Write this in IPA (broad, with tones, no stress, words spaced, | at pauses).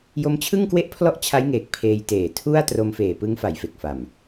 jo˦˥mt͡ɕʰɯ˥˩ŋkwe˥˩ʔpʰlɔ˥˩ʔ t͡ɕʰa˦˥jŋeː˨˩k̚ pʰeː˧jteː˨˩ tʰu˥˩a̯ tro˧mfeː˨˩pɯ˦˥ŋfa˩˦j fe˨˩k̚fa˨˩m